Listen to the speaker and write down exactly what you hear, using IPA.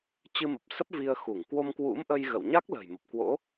t͡ɕ ɨ˧ m ə˨˩ p̚ s ə˦˥ p̚ v i˧ ə̯ x u˧˩ ŋ k w o˧ m k w ṵ˧˥ m ʔ ə˧ j ɣ ə̰˧˨ w ɲ a˦˥ k̚ l ə̤˨˩ j m ə˨˩ p̚ k w o̰˧˥

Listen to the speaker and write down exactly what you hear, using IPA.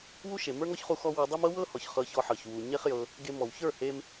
w u˦ ʃ e˨ m ə˞˦ ŋ ɔ˦ ç χ u˧ x ɔ˦ w ɤ˧ dˤ e˦ m ɤ˦ w ɤ˦ h ɔ˨ ç χ ɤ˧ ç ɔ˧ ħ ɤ˨ ç w u˨ ɲ e˦ χ j ɤ˧ | ɡ e˧ m ɔ˨ w ç ə˞˦˨ h e˧ m

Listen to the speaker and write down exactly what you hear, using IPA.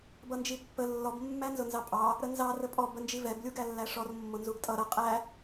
b ʌ n d͡ʒ i pː ə lː ɔ b mː æ n z ʊ n z ɑ pʼ ɑ | ɾ ə n z ɑ r ə pʼ ɔ b ə n d͡ʒ i v ɛ b lʲ u ɡ æ lː æ ʂ ɔ r mː ʊ n z u ɡ tʼ ʌ ɾ ʌ qʼ æ

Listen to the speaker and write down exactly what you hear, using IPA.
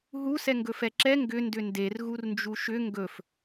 ɦ u s ɛ ŋ ɡ ɵ f ɛ ǁ ɛ ŋ ɡ ʏ n d ʏ n d e r ɣ u r n d͡ʒ u ʃ ʏ ŋ ɡ ɵ f

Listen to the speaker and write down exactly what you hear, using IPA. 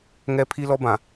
ŋ ɛ˦ pʰ i˦ l ɔ˦ b ã˨

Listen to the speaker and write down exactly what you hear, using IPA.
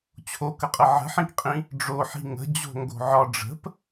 t͡ɕʰ o k ə qʼ ə ʕ ə̤ ħ ĩ k qʼ ĩ | ɖ͡ʐ o ħ i̤ ŋ ə̤ d͡ʑ o̤ ŋ ɡ o̤ ʕ ɒ ɖ͡ʐ ə̤ p

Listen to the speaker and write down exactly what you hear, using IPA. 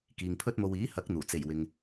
k iː˨ ŋ pʰ ɵ˥ t̚ m o˧ w iː˨˥ h ɐ˨˥ k̚ n̪ uː˨˩ t͡s e˨˩ j w ɪ˨ ŋ

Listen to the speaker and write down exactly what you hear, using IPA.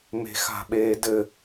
m e̤ x a̤ ɓ eː d ɘ

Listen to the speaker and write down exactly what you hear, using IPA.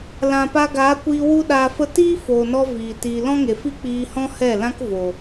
l ã˨ p a˧ ɡ aː˨˦ kʷ iː˧ w u˦ ɗ aː˧ f ə˦ t iː˦ f oː˨ n ɔ˧ v iː˨ t iː˨ l ɔ̃˦ ŋ e˨ f i˦ k͡p iː˧ h ɔ̃˦ h ɛ˦˨ l ã˦ k v o˨

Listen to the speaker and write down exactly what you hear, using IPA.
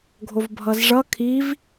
ɡʱ o v bʱ ʌ z ʐ ʌ kʰ i v

